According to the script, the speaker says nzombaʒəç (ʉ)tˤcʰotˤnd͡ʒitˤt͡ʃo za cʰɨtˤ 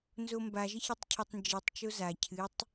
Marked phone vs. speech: incorrect: ɨ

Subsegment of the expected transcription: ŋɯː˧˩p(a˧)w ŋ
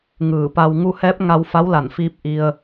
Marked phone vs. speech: correct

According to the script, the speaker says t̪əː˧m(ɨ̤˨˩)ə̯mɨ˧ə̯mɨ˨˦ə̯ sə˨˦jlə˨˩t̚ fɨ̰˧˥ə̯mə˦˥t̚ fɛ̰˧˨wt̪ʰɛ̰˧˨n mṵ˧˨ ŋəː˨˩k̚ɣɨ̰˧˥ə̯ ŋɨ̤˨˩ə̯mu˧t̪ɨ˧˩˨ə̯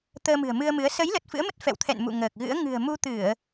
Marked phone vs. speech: correct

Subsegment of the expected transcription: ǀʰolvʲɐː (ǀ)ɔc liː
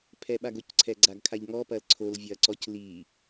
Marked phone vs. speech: correct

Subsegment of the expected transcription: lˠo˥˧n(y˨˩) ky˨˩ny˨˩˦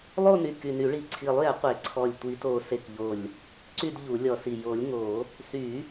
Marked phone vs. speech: correct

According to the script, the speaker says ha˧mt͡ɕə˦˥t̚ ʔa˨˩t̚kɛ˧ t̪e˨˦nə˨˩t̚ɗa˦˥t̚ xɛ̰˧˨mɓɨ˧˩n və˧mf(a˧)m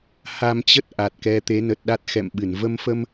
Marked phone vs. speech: incorrect: ə˧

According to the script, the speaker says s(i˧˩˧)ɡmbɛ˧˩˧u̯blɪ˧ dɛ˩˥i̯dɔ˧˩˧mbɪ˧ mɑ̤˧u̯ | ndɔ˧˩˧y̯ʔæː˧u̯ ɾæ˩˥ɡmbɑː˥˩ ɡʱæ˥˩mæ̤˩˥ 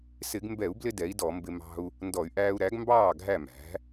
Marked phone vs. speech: incorrect: ɪ˧˩˧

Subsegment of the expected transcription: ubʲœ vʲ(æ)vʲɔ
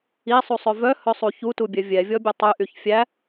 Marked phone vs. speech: incorrect: ɛ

